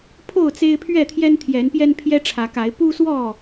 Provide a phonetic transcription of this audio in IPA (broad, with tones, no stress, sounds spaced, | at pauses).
pʰ o˥˨ ʊ̯ t͡s e˦ ɪ̯ pʰ ɥ ɛ˥˨ t̪ʰ j ɛ˦ n t̪ʰ j ɛ˨˦ n p j ɛ˦ n pʰ j ɛ˦ ʈ͡ʂʰ ä˨˦ k a˨˦ ɪ̯ p u˦ s w ɔ˥˨